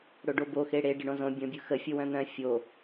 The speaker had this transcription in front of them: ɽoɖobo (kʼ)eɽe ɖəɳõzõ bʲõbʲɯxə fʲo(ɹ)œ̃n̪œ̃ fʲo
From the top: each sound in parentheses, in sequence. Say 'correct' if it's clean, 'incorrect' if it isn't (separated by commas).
incorrect, incorrect